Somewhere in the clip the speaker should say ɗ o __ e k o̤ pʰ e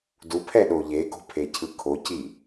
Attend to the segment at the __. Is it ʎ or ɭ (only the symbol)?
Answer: ʎ